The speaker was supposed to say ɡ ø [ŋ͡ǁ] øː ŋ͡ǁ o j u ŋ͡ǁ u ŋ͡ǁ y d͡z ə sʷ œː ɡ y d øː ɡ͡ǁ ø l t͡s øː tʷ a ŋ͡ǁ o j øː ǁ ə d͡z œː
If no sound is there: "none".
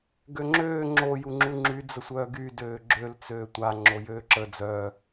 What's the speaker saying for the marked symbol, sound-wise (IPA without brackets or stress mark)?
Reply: ŋ͡ǁ